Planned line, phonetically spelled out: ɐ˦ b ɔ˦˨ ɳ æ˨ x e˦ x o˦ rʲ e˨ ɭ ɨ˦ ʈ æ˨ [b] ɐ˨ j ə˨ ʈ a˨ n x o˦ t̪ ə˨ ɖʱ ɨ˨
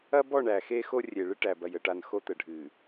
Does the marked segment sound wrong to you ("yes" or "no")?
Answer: no